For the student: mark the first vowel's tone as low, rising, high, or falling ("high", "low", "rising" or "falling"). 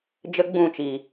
high